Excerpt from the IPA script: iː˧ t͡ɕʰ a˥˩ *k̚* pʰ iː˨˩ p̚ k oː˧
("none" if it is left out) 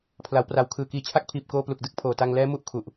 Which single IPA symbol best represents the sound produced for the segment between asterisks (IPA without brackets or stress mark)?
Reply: k̚